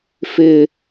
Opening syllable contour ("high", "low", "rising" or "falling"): high